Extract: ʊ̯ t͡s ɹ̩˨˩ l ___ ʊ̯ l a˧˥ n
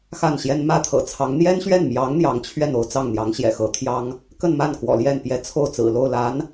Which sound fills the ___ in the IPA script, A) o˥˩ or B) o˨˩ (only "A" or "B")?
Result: A